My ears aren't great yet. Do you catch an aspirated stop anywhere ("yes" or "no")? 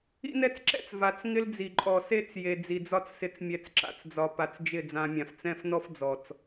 no